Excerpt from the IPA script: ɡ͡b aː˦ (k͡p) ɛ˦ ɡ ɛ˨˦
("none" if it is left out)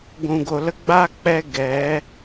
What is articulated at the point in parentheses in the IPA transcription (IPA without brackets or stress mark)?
k͡p